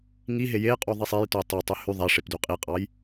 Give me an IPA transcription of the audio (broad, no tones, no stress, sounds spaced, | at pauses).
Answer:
ŋ i ɦ e j e qʼ u ðˤ i sˤ e j t o j tˤ ø tˤ y h y ðˤ æ ʂ e p d y qʼ i qʼ ɑ j